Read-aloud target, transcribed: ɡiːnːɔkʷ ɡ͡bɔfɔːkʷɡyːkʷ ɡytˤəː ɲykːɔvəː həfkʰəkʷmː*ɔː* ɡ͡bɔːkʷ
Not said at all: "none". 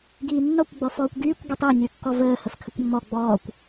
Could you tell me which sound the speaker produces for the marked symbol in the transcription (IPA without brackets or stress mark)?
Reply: ɔ